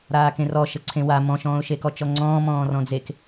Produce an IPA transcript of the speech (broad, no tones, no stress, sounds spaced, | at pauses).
ɾ aː k ẽ r ɔ ʃ ə ǀʰ ẽ w a m ɔ̃ ʃ ɔ̃ː ʊ̯ ʃ e k ɔ t͡ʃ ɔ ŋ͡ǀ ɔ̃ː m ɔ̃ː r ɔ̃ d͡z e k